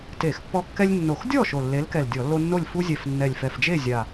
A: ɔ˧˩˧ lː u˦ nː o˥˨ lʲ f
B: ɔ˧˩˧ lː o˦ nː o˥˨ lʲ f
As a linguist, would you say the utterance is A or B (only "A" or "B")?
B